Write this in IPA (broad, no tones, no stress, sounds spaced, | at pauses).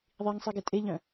ðˤ i ŋ sˤ i ɡ e tʼ e ʎ œ̃